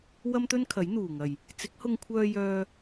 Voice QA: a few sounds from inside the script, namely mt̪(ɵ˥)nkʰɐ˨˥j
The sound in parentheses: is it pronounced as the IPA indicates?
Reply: yes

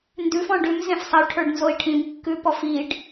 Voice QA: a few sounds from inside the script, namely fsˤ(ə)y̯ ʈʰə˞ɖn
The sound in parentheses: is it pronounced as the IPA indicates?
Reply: yes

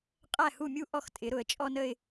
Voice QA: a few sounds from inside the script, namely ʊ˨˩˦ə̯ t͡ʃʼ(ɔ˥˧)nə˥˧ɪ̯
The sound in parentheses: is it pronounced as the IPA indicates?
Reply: yes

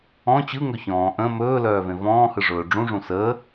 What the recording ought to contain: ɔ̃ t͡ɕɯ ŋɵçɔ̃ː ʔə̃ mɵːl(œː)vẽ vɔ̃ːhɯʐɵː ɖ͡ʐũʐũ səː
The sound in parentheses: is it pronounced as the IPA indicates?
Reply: yes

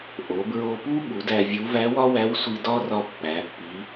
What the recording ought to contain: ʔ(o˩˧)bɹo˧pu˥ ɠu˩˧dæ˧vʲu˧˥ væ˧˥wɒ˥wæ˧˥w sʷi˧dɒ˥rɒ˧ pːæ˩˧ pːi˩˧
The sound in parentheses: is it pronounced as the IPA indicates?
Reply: yes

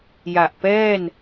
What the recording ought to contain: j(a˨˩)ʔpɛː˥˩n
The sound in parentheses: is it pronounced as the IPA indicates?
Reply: yes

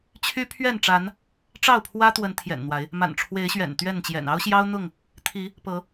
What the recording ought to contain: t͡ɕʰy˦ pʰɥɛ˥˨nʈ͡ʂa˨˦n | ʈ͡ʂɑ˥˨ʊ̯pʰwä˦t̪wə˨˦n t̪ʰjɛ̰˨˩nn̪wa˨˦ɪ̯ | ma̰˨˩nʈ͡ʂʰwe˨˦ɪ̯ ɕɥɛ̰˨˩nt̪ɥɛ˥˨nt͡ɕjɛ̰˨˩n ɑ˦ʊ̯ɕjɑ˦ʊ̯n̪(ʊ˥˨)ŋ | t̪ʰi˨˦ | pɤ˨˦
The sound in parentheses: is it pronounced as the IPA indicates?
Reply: yes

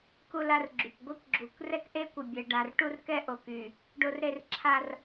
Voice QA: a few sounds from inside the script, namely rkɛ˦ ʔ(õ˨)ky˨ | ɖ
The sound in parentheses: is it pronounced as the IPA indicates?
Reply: no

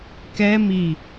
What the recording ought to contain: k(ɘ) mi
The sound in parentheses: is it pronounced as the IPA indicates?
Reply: no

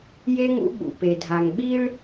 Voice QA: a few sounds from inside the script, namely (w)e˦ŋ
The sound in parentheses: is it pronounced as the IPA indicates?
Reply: no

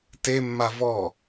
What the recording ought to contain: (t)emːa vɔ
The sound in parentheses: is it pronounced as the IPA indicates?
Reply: yes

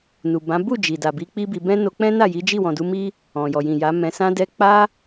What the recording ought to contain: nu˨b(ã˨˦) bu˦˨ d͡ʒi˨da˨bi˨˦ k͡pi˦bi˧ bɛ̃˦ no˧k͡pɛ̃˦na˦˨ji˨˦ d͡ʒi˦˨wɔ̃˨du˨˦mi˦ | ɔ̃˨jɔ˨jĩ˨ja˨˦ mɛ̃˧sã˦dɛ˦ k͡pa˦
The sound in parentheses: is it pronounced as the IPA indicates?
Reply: yes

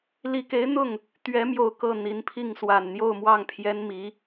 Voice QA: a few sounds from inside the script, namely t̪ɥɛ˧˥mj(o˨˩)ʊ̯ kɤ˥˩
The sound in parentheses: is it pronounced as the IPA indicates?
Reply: yes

